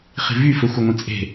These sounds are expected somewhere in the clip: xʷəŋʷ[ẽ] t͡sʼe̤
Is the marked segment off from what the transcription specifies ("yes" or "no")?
no